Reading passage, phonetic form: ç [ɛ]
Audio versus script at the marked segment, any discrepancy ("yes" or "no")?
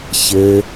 yes